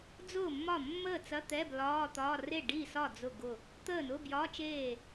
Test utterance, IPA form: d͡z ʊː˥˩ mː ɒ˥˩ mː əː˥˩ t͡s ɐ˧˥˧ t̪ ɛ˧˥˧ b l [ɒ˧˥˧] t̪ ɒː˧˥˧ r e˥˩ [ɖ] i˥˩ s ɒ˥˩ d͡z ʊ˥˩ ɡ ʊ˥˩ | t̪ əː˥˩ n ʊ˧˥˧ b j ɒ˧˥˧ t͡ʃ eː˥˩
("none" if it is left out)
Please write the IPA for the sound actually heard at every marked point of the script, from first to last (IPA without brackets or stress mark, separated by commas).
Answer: ɒː˧˥˧, ɖ